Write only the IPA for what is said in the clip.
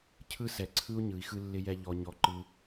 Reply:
cʰ ɯ˥ s ɛ˨ ǀʰ ɯ˥ u̯ ɲ ɯ˨ i̯ x ɯ˦ lː ɪ˦ j ɛ˦ ʎ ɔ˦ ɲ ɔ˦ ǃ ɯ˦

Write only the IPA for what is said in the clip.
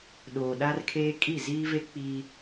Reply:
ɗ oː˨ ɗ a˦ r kʰ eː˦ kʼ i˦˨ z iː˦ v e˦ k͡p iː˦

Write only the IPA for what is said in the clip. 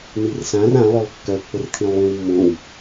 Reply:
n i r s ã r ã lˠ ɵ lˠ kː œ pː ə r t̪ʰ ĩ lˠ w ĩ w mː õ w

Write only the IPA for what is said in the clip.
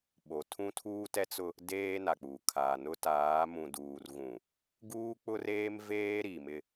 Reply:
ɓ o˨ tʰ ũ˦ tʰ uː˦ t ɛ˦ t͡s ʊ˦ | d eː˦ n a˨ k͡p uː˨ kʰ a˨ n ʊ˦ t aː˨˦ m ũ˨ d uː˨ r ɣ ũ˨ | ɡ uː˦ k͡p ʊ˦ r eː˦ m v eː˦ ɾ i˨ m ɪ˦

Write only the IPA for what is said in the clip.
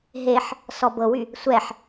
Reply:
ɦ e ħ | s ɔ b ɤ w y | sʷ ɛ ħ

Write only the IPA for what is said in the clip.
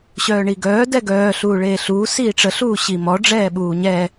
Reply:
ɕ œː ɳ i ɡ œː d ɛ ɡ œː ɬ uː ɭ eː ɬ uː s iː ʈ͡ʂ ə ɬ uː ɕ i m ɔ ɖ͡ʐ ɛː ɓ uː ɲ ɛ

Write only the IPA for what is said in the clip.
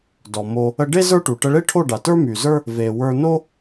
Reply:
d ɔ˨ m o˧ | ə˧ ɖ e˦ z ə˞˦ ʈ u˨ ʈ ə˧ ɭ e˦ ʈʰ o˦˨ ɖ a˨ t ə˞˦ m y˨ z ə˞˦ | v e˨ w ə˞˧ n o˦

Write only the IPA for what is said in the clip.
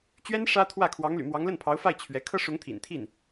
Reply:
t͡ɕ ɥ ɛ˥ n ʂ ä˥ t̪ʰ w ä˥˩ kʰ w ɑ˧˥ ŋ l y̰˨˩ m w ɑ˧˥ ŋ l ə˥˩ n pʰ ɑ˧˥ ʊ̯ f a˥˩ ɪ̯ t͡ɕʰ ɥ ɛ˧˥ kʰ ɤ˥ ʂ ʊ˧˥ ŋ t̪ʰ ḭ˨˩ n t̪ʰ i˥˩ n

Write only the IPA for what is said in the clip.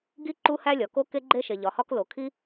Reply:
ɡ i˥ ǃ u˥ h æ˥ lʲ ɒ˩ k o˥ k e˥ ɡ͡ǃ e˥ ʃ e˩ ʎ ɒ˩ h ɒ˥ k l o˩ kʰ i˥

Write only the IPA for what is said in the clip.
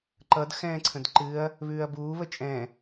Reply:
ǃ ʌ d x ɛ̃ː ǀʰ ə̃ d ǃ ɨ ɐ̯ | β ʉː ɐ̯ b uː β ə t͡ʃʼ ɛ̃

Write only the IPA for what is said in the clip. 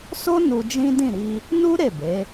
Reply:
s o˦ n u˧ d͡ʒ ĩ˦ d ĩ˦˨ ɾ i˧ | n u˦ ɾ e˦˨ b e˨˦

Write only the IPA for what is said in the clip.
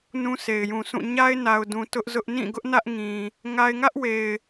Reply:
n ũ˦ s e˨ ɪ̯ j ũ˨ sʰ ũ˦˨ ɲ a˦ ɪ̯ n a˨ ʊ̯ d ũ˨ t ʊ˦ ʔ z ʊ˦ ʔ n ĩ˦˨ ɡ ʊ˦ ʔ n ä˦ ʔ ŋ ĩ˨ | ŋ a˦ ɪ̯ ŋ ä˦ ʔ w e˨ ɪ̯

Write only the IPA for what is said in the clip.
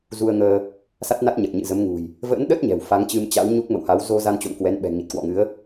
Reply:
z u˧ ə̯ ŋ əː˧ | s a˦˥ t̚ n a˦˥ t̚ ɲ ə˨˩ t̚ ɲ ɨ̰˧˨ z ə˨˦ m ŋ ṳ˨˩ j | v ə̰˧˥ n ɗ ə˦˥ t̚ ɲ ɛ̤˨˩ w f a˨˦ ŋ t͡ɕ ɨ˧ m t͡ɕ a̰˧˥ w ɲ u˦˥ k̚ m ə̰˧˨ w h a˨˦ w z o˧ z a˧ n t͡ɕ o̰˧˨ m k w ɛ˨˦ n ɓ ɛ̤˨˩ ŋ i˨˩ t̚ k w ɔ̰˧˨ ŋ ɨ˨˦ ə̯

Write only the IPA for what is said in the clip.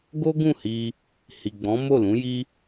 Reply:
ɡ o˦ ɡ ũ˦˨ h i˧ | h i˨ ɡ͡b ɔ̃˨˦ m o˦˨ l ũ˨˦ j i˦

